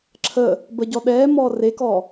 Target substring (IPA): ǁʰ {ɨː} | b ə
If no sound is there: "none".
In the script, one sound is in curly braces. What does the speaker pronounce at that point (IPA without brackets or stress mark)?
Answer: əː